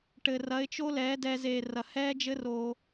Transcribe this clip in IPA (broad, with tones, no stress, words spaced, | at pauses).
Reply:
ʈɘ˨rɐ˨˦ɪ̯t͡ʃo˦ lɛː˨˦dɛ˧ zeː˨rɐ˨ hɛː˦d͡ʒɘ˦roː˧